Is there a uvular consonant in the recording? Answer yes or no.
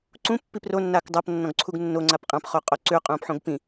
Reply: yes